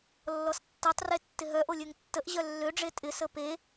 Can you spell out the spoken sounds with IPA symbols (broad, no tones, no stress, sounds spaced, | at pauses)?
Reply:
lː ɔ s tː ɛ tˤ r e tː ɪ ɦ œ ʔ o lʲ ø ŋ tː ə ʔ ʑ œ lː ø ɖ͡ʐ e tʼ ɪ s ə p e